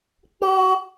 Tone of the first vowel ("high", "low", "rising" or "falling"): high